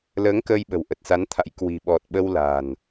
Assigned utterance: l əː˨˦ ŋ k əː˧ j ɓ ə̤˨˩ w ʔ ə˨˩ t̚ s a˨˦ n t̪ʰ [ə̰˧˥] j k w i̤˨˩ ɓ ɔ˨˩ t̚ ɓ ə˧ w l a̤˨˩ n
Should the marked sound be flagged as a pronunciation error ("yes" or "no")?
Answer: yes